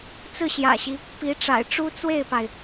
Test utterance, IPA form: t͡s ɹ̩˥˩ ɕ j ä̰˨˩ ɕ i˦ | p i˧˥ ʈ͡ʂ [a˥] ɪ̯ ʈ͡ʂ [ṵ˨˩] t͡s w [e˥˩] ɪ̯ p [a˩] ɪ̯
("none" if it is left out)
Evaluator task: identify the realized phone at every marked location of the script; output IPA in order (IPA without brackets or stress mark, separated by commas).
a̰˨˩, u˥, e˥˩, a˩